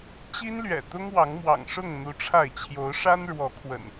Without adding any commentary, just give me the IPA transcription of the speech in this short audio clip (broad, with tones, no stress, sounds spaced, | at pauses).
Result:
t͡ɕ i˦ n l ɥ ɛ̰˨˩ t̪ ʊ˦ ŋ w ɑ˨˦ ŋ m w ɑ̰˨˩ ŋ ʂ ʊ˥˨ ŋ n̪ u˨˦ ʈ͡ʂʰ a˥˨ ɪ̯ t͡ɕʰ j o˨˦ ʊ̯ ʂ a˦ n ɻ w ɔ˨˦ kʰ w ə̰˨˩ n